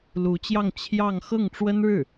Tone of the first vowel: rising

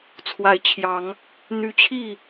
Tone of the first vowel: rising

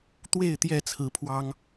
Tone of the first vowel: falling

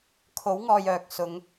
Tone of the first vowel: rising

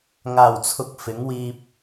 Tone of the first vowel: low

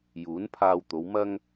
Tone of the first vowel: rising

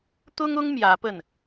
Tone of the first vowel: high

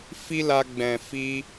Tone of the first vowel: high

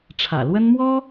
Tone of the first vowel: low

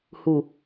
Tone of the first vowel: low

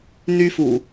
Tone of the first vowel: high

